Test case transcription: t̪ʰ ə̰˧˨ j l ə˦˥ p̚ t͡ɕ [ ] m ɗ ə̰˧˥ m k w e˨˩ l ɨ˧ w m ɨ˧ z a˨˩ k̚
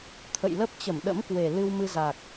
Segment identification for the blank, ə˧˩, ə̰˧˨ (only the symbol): ə˧˩